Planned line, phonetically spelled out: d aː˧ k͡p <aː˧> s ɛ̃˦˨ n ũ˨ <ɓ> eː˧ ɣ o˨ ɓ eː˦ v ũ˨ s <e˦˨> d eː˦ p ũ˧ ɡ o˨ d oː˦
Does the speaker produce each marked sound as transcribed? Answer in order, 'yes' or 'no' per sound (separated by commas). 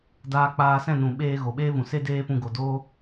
yes, yes, no